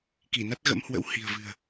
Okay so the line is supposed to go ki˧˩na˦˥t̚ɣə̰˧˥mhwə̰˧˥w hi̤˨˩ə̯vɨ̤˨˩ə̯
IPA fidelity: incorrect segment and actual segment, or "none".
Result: none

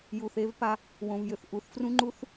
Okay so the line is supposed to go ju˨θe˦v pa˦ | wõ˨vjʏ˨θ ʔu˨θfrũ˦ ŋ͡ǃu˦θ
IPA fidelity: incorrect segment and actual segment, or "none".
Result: none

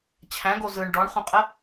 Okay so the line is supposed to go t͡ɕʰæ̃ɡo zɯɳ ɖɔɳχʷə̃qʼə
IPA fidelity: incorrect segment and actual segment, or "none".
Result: none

